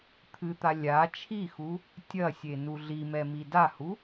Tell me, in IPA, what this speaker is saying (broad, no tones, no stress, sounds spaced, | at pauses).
t̪ʰ ɨ t̪ a lʲ a t͡ʃʰ i x u | tʲ ɐ sʲ e n u ɮ i m ɛ m i d a h u